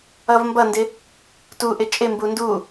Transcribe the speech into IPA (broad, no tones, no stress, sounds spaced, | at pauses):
ʌ v m b ʌ n d ɪ | t u ʔ ɪ t͡ʃʼ ɪ m b u n d u